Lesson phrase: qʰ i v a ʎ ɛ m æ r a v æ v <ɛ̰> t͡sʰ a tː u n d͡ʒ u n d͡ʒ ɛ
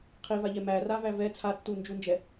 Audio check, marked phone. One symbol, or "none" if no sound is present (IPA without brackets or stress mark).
ɛ